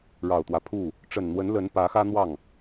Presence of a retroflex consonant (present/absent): present